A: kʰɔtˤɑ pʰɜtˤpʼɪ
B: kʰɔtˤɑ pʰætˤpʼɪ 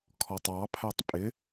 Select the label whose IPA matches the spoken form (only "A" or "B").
B